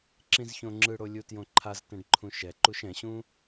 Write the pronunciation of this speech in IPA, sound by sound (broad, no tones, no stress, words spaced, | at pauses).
ǁĩzçõŋ͡ǁɯɽo lʲutjõǃʰaztɛ̃ɖ ǃʰũʃɛǃuʃ ɛ̃ɕũ